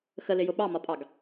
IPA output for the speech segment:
xəlɪjʊ ɓɑmɒpʼɑɡ

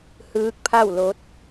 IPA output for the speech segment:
hɯː˧˥k̚pʰa˥˨w lo˧˥t̚

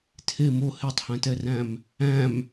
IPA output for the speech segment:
tʰe mo hetˤhæ̃tɛræ̃m | æ̃m

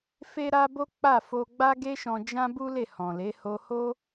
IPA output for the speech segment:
fe˦ɾa˦ bo˦k͡pa˦˨fo˧ɡ͡ba˦ ɡe˦ ʃɔ̃˧d͡ʒã˦bu˦ le˦˨hɔ̃˨le˨˦ ho˧ho˦

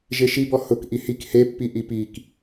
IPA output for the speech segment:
ʒeʃibɔ hʊk ʔihik hepːi ʔipik

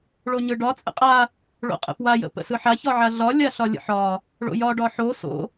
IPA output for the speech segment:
ɭoɲɯɖɒ t͡sʼə̰qʼa | ɭo̰qʼə̰pwa jə̰pə̰sɯħa çɒʕaɮɒ lʲaɬɒlʲə̰ħɒ | ɭo̰jɒ ɖɒħo so̰

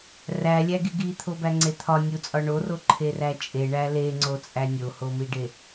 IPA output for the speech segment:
rælʲæɡi ɡit̪ʰobæŋ͡ǀe t̪ʰɒnʲut͡sʼɒ ɳoroǃʰeræ t͡ʃʼeɳæ leŋ͡ǀot͡sʼæ nʲohomiɖe

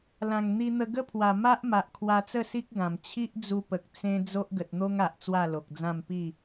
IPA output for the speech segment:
lã˨˩ŋn̪i˧n̪ə˧ ɡə˦pʰwa˨˩ ma˦ʔ ma˨ʔkʰwa˧t͡sə˥˧si˦k̚ ɡã˨˩m t͡ɕʰi˦ʔd͡zu˧pə˨k̚ t͡sẽ˦ d͡zo˦ʔɡə˨t̚n̪o˦ŋ a˨ʔt͡swa˥˧lo˨k̚d͡zã˥˧m pi˥˧

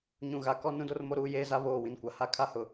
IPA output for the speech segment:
ɲũ˨ɣa˨ kɔ˦ nũ˦do˦rmo˦ ɾuː˦ jeː˦za˦ βoː˦˨wĩ˨nkʷa˨ ha˦kʰa˦hʊ˨

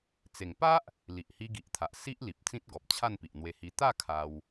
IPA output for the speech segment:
t͡se˨˩ŋpa˦ʔ | li˨ʔhi˧ɡi˨ʔt̪ʰa˨ʔ si˦ʔli˨p̚ t͡sĩ˦t̚ɡɔ˨p̚t͡ɕʰa˥˧n pi˨ʔn̪we˧hi˧ t̪a˥˧ kʰa˧w

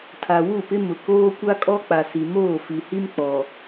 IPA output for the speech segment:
tʰa˨wu˦˨pɪ˦mʊ˨ koː˦kʷa˦kʼɔ˦ k͡pa˨si˨moː˦˨ fi˨hi˦m k͡pɔ˨

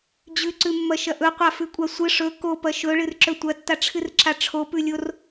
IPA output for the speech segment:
d͡ʑʉǀʉmːɐʃɐ ʔɵqʷafʉkʷʼa sʷɨ ʂɵ kopɐ ʃɵɭɨrǁɵ tʷɐtːaʈ͡ʂʰɨrǁa ʈ͡ʂʰopʉlʲor

